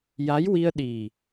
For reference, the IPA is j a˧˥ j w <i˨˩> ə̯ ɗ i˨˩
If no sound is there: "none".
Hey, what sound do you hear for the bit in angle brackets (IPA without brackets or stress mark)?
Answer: i˧